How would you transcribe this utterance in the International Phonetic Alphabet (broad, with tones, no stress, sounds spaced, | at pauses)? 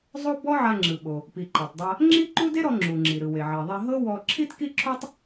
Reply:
zˤ o˥ b ɔ˥ ʕ a˧ ŋ͡ǁ ɯ˩ ɓ o˩ | p i˩ ǃ a˩ tˤ dˤ a˧ | ŋ͡ǁ i˥ ǃ u˥ d e˥ ɾ ɔ˧ ŋ͡ǁ u˩ ŋ͡ǁ i˩ ɾ ɯ˩ w e˩ ʕ i˩ ðˤ e˧ ɦ ɤ˥ w ɔ˧ ǁʰ i˥ t k i˥ ǁʰ u˥ tˤ